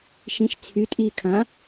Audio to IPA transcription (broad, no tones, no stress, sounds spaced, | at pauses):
ʃ ĩ ʃ t͡sʰ y tʼ iː kʰ ã